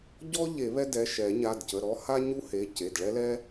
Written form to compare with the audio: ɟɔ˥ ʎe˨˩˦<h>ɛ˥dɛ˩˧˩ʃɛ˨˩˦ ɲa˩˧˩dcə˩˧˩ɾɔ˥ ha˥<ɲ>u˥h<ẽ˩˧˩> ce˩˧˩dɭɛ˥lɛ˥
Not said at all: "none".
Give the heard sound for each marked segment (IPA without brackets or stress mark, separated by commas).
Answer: β, ɲ, e˩˧˩